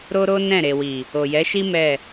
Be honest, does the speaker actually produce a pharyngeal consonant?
no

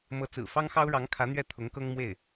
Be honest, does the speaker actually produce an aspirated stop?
yes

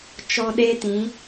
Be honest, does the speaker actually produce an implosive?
yes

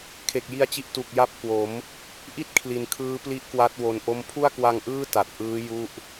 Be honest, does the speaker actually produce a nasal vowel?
no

